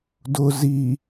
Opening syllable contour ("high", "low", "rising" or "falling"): low